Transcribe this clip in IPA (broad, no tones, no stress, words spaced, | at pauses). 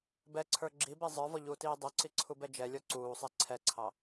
bɛǀʰə˞ ɡ͡ǁibe zˤə˞vɔʎuːtiː dˤoǀiǀʰubɛ d͡ʒɛlʲɔ ǀuːsˤe ǀʰɛǀʰɑ